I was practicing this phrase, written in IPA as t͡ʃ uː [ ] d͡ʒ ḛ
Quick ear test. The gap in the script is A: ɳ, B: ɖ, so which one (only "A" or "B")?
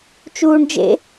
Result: A